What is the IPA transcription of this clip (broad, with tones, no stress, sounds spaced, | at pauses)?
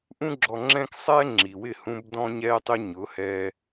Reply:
ʔ ũ˧ ɡ͡ǁ ɔ˨ ŋ͡ǁ ɛ̃ː˧ k sˤ ɛː˦ ŋ͡ǁ i˨ w ɪ˦˨ h ũ˧ b d ɔ̃˧ ɲ ɛː˧ tˤ ɪ˧ ɲ ʊ˨˦ h ɛː˧